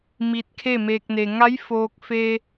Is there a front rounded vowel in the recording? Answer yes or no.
no